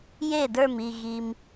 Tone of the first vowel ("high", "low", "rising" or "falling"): falling